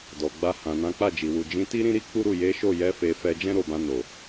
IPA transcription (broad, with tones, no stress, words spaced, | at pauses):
dɔ˨ ɡ͡ba˧hã˨nã˨˦ k͡pa˦˨d͡ʒi˨ wu˨d͡ʒĩ˨˦ ti˦ɾĩ˦ɾi˦ k͡pu˦ɾu˦˨ je˨˦ʃo˦˨jɛ˨˦ fe˧fɛ˧ d͡ʒɛ̃˦ɾo˦˨bã˧ no˨